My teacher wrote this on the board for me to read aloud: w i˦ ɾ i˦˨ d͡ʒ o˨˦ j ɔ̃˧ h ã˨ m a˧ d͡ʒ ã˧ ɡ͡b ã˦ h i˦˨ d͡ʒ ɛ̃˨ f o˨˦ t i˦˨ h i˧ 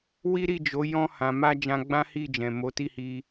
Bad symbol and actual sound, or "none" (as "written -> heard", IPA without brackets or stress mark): f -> m